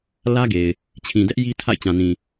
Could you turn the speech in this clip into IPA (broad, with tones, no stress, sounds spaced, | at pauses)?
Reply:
l ä˦ ɡ e˨ ɪ̯ | t͡ɕʰ ĩ˨ d ɛ˦ ʔ j i˦ tʰ a̰˦˨ ɪ̯ t͡ɕ ã˨ n ĩ˨